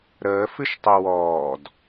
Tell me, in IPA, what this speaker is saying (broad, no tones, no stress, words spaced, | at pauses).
ɾəː fɨʃtˤewɔːd